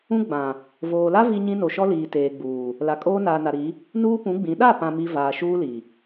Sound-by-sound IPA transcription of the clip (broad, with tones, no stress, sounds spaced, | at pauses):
ũ˦ ɡ͡b ã˨ | v oː˨ l a˦ v i˦ ɲ ĩ˦ n o˨ ʃ ɔ˦ l iː˨ t eː˨ ɡ͡b uː˨ | l a˨ kʼ oː˦ n aː˨ n a˨ ɾ i˨˦ | n uː˦ p ũ˨˦ ɡ͡b ĩ˨˦ ɗ a˦˨ p ã˨ m i˨ v aː˨ ʃ uː˦ l i˨